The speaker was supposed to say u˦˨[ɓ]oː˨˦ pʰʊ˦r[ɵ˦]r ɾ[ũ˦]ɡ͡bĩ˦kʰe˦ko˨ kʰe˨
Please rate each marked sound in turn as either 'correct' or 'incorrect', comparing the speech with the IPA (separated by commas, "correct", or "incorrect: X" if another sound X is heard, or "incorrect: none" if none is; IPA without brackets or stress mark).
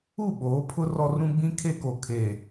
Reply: correct, incorrect: ɔ˦, correct